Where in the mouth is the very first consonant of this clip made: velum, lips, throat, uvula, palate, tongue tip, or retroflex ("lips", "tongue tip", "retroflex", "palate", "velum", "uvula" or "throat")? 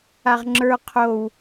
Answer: uvula